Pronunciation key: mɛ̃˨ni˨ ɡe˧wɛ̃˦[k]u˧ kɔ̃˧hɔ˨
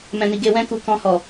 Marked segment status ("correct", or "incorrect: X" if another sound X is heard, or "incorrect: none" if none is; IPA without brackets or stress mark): correct